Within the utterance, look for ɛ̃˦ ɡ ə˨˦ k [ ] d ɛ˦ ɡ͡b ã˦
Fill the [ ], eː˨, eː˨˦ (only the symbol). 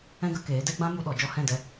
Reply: eː˨˦